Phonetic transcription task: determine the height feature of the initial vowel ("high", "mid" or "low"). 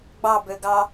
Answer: low